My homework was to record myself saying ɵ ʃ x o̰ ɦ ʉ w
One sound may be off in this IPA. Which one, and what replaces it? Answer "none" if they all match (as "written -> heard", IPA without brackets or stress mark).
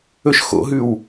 none